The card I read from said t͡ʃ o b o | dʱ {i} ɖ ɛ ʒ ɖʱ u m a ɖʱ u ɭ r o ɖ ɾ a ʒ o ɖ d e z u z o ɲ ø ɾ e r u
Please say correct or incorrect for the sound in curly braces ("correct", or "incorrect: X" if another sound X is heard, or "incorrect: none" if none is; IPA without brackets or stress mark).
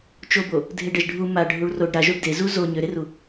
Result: incorrect: e